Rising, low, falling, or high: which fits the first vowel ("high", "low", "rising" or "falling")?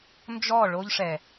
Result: falling